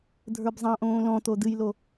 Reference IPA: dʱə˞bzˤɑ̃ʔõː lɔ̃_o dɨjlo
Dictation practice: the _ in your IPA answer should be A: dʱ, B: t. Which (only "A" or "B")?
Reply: B